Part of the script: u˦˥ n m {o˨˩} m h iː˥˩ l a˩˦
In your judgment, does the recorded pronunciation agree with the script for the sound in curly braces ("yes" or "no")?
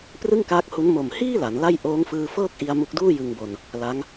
yes